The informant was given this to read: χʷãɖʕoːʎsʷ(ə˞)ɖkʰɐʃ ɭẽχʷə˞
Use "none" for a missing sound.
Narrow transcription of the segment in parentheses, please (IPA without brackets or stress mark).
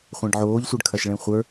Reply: ə˞